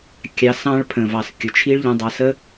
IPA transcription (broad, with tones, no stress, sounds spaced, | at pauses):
kʲ ɑ˧ s ɑ̃˦ ɭ pʰ ə̃˨ v ɑ˨ s kʲ ʊ˨ t͡ʃʰ i˦ ɭ ʎ ə̃˧ dˤ ɑ˧ s ə˦